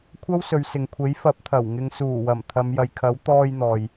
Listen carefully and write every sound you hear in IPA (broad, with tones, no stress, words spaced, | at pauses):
kʷʰɐ˥wsɵ˨˧ɥsɪ˨ŋkʷʰe˨˥j fɐ˨˥p̚t̪ʰɐ˨˩w ŋɪ˨ŋsuː˨˩wɐ˨˩m t̪ʰɐ˨˧mjɐ˨jkʰɐ˨˥w t̪ɔː˧jn̪ɔː˨j